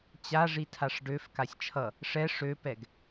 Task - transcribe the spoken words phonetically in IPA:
t͡ɕ a ʐ i tʰ a ʂ ɖ ø f k a sʲ t͡ʃʰ ʌ | ʂ ɛ ʂ ø p ɛ ɡ

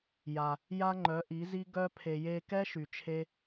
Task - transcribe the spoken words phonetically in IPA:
j a˨ | j a˦ ŋ͡ǃ œ˨˦ ʔ i˨˦ z i˦ ɡ œ˦ pʰ e˨ j e˧ k ɛ˦ ʃ y˨ t͡ʃʰ e˦

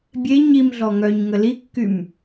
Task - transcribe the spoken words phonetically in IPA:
bʲ e ɲ i m ɮ ɔ ŋ œ ɲ ŋ ə l i kː y m

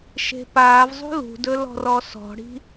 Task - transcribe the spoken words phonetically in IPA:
ʃ e̤ p aː v zˤ ṳ l ṳ d ɵ l ɔ̤ r ɔ s ɔ̤ ɽ i̤

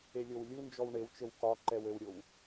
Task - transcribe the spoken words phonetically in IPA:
e lʲ o w lʲ u n d͡ʒ ɔ w ɳ e w t͡ʃ ɘ w k ɒ ǃ ɛ w ɘ w ɾʲ o w

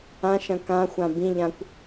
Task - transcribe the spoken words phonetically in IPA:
ã ʃ ɐ̃ k ã xʷ ã b ĩ ʎ ã kʷ

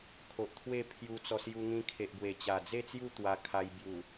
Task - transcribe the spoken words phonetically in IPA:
kʰ o˨ ʔ t̪ʰ w e˥˧ pʰ j u˧ t͡s ɔ˧ s j u˧ ŋ ĩ˧ kʰ e˨ ʔ b w e˨˩ t͡ɕ a˨˩ d͡z e˥˧ t͡s j u˥˧ t̪ w a˧ kʰ a˧ j b j u˨˩

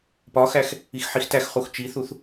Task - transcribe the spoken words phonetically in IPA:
p ɒ x æ x | i x ħ i x t æ x χ u x t͡ʃ i θ u θ

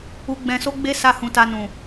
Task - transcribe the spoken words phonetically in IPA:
u˧ ɡ͡b ɛ̃˧ s o˦ ɡ͡b e˦ s a˦˨ h ũ˧ t a˧ n ũ˨

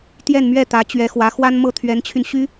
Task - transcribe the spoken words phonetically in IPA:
t̪ j ɛ˥˧ n m ɥ ɛ˥˩ t̪ ä˧˥ t͡ɕ ɥ ɛ˧˥ x w ä˧˥ x w a˥ n m ɤ˥˩ t̪ʰ ɥ ɛ˧˥ n t͡ɕʰ y˧ n ɕ y˥

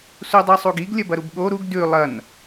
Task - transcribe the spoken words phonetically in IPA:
s u dˤ i sˤ u ɡ i ɡ lʲ ɐ b ɐ ɾ u b ɠ o ɾ u ɡ d ʉ lˠ ɐ n

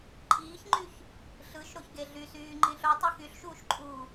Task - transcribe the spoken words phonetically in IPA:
ǃʼ iː ç ŋ͡ǃ y ç | ɬ ɯ ʃ ɾ o ç ɡ e ɮ y s yː ŋ͡ǃ ĩ ɬ o tˤ ɯ x y ɬ ʃ uː ʃ ǃʼ uː

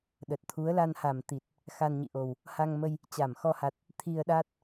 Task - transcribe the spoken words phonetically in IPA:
ɗ ə˨˩ t̚ t̪ʰ u˨˦ ə̯ l a˧ n h a˨˩ m t̪ i˨˩ t̚ | x a˧ n ɲ ḭ˧˨ ʔ o˨˩ w | h a˧ ŋ m ə˧ j | t͡ɕ a˧˩ m x ɔ˧ h a˨˩ t̚ | t̪ʰ i˧ ə̯ ɗ a˦˥ t̚

